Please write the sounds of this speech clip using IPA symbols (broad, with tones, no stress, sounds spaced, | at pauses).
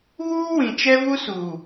β uː˦ w ĩ˨ t͡ʃ ɛ˦ v u˦ s uː˨